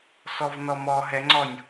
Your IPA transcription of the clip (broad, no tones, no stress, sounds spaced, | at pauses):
s ɔ v n ɔ m ɔ ɦ ɛ ŋ͡ǀ ɔ nʲ